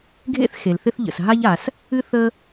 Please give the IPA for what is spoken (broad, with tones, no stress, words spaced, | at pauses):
ɡʱḛ˥θ xe˩lθɪ˥θʎə̰˩s ɦa˥ʎa˩s | ɨ˥ θə˥